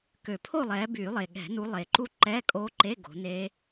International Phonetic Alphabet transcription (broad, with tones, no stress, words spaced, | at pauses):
kø˨˩˦pʰo˥˨lˠɛː˨˦ byː˨˩˦lˠe˨˩ɠɛ̤˨˩˦nu˨˦ lˠe˨˩ǃu˦˥ ǃɛ˧˥˧kʼo˦˥ǃe˧˥˧ ɡo̤˨˦neː˦˥